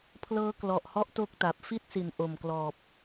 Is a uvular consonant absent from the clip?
yes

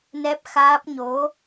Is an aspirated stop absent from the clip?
yes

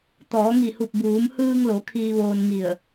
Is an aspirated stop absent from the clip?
no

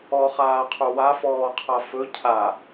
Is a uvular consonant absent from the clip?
no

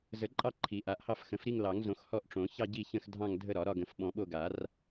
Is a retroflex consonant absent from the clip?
no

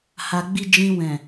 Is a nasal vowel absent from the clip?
no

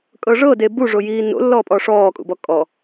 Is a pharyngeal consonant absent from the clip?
yes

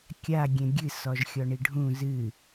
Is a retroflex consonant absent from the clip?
no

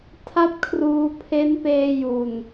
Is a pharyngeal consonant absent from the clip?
yes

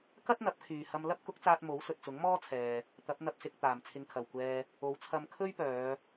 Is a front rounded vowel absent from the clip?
no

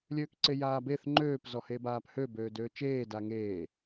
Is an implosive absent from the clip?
yes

